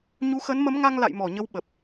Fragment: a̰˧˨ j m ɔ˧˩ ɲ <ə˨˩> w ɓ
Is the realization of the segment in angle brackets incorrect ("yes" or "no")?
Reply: yes